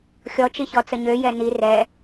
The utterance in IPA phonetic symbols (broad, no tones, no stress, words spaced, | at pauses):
xʲɔt͡ʃiçɔt͡sə ɲøjɛ ni rɛ